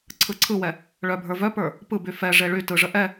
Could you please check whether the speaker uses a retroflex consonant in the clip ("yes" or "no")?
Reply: yes